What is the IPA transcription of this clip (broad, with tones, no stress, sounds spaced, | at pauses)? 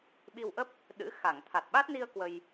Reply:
ɓ i˧ w ʔ ə˦˥ p̚ | ɗ ɨ̰˧˥ x a˧˩ ŋ t̪ʰ a˨˩ t̚ ɓ a˦˥ t̚ n i˧ ə̯ k w ə˧ j